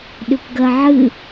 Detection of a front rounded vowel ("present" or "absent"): present